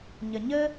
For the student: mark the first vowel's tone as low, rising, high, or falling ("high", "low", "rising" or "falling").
low